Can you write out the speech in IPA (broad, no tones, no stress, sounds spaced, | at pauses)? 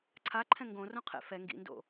ǀʰ a ǃʰ ɛ̃ ŋ ɡ õ r õ qʰ ḛ f ɛ ŋ ɡ ḭ n d o̰